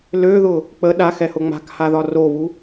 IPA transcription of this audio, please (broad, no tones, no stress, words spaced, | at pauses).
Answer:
løðʊ | k͡pə ɗaxɛhʊ ŋ͡ma̤khaðɒ roβu